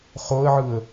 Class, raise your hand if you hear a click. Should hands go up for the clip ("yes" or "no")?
no